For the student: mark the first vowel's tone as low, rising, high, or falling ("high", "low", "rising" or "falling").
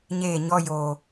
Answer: falling